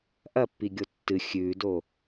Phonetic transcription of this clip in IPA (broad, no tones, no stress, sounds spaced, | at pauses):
ʔ ɐ pː i ɡʲ o tː ɨ xʲ ʉː d o